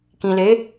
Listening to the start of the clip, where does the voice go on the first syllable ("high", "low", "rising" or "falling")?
low